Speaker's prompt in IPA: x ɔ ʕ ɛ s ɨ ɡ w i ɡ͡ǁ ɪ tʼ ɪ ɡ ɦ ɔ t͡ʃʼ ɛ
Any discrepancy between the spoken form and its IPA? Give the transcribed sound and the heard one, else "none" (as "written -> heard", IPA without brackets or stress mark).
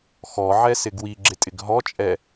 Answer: ɨ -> ɪ